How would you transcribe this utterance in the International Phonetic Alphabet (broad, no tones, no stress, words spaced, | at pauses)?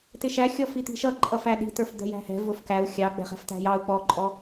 tɪʃæxʲɔfi t̪i̤ʃʌǃʼʌfæ ɗi̤tə˞fd̪ɛ̤ jæ̤hɛ̤ vʊfkæu̯ xʲɑ ɡ͡bɛ̤χɛ̤ftæ̤jɑu̯ k͡pɔǃʼɔ